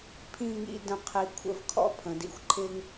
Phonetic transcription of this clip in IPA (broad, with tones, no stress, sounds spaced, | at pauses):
pʰ ĩ˥˧ ŋ ḭ˥˧ d ə̃˥˧ qʰ i˧ kʷʰ ə̰˧ v kʰ ɔ̰˥ pʰ ə̃˩˧ d ḭ˧ xʷ ǃʰ ɪ˥ ŋ